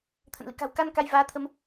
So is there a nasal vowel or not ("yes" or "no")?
no